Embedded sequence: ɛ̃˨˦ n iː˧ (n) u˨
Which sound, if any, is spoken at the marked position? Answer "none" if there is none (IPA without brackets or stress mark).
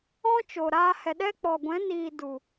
d